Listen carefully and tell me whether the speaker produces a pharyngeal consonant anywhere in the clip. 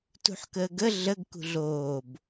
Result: yes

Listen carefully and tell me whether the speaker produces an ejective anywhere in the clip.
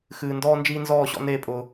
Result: yes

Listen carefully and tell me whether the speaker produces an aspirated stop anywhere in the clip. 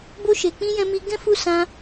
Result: no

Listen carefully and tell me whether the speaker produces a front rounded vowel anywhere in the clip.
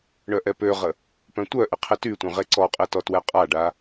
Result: yes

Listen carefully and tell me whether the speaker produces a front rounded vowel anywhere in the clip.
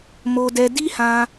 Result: no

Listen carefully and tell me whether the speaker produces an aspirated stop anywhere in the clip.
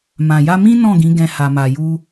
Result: no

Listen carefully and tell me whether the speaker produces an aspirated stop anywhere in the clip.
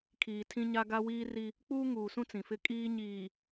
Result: yes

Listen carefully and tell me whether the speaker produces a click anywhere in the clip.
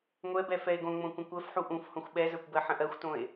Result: no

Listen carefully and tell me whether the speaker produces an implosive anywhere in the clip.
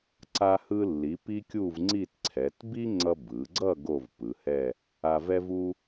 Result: no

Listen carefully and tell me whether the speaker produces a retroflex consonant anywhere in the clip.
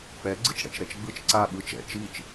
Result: yes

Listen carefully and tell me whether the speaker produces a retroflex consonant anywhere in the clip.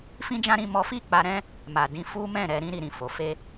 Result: no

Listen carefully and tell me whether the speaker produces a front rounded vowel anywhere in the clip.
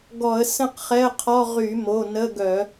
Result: yes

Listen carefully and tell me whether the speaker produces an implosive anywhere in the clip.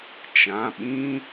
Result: yes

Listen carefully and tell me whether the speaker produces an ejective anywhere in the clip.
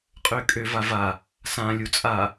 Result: yes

